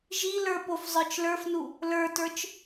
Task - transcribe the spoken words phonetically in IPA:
ʒ i l ə˞ p o f zˤ ə˞ t͡ʃ l ə˞ f n u | l ə˞ t ə˞ t͡ʃ

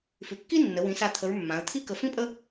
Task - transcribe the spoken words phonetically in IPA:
f ʉ˩˧ kː i˥ nː ə˩˧ w ĩ˩˧ s a˧˩ t̪ʰ ə˩˧ ɹ mː ã˩˧ ə̯ t̪ʰ i˥ k ə˧ f ĩ˥ pʼ ə˥

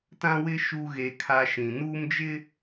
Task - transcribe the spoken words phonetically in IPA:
t ã˦ w ɪ˦ ʃ u˦ ɣ e˦ kʰ a˦ ʃ ĩ˨ n uː˦ m d͡ʒ ɪ˦

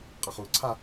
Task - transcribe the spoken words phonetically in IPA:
qʼ a χ u ǀʰ a

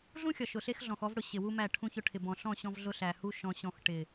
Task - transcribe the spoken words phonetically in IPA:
ɮ ũ˦ xʲ ɒ˨ ʃ ʊ˨ ɬ e˦ x ɮ ɔ̃˨ x ɔ˦ v ɽ ʊ˨ ɕ ɪ˨ w u˦ m æ˦˨ ʈʰ ũ˦ ç ʊ˦ ʈʰ ɪ˨ b ɔ̃˨ ɬ ɔ̃˦˨ ɕ ɔ̃˦ v ɮ ʊ˦ ɬ æ˨ h u˦ ʃ ɔ̃˨ ɕ ɔ̃˨ x ʈ ɪ˨

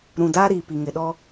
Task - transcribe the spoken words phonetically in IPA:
ɾ ũ˨ d a˦ ɾ iː˨ p i˨ ŋ ɪ˨ ɗ ɔ˦

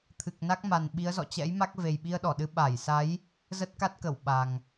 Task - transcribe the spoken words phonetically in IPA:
t̪ʰ ɨ˨˩ k̚ n a˦˥ k̚ m a˨˩ n ɓ i˨˦ ə̯ z ɔ̰˧˨ t͡ɕ ɛ̰˧˥ j m a˦˥ k̚ v e˨˩ j ɓ i˧ ə̯ ɗ ɔ˧˩ ɗ ɨ˨˦ ɓ a˧˩ j s a˨˦ j | z ə˦˥ t̚ k a˦˥ t̚ k ə˧˩ w ɓ a˨˩ ŋ

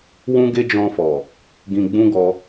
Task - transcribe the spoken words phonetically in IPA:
w ũ˦ ɡ e˦ d͡ʒ ɔ̃˧ f ɔ˨ | ɡ ĩ˧ ɡ͡b ũ˦ ɡ ɔ˧

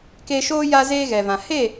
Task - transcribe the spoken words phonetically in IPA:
k eː˧ ʃ oː˦ j aː˦ z eː˦ ɣ ɛ˨ v ã˨ h e˦˨

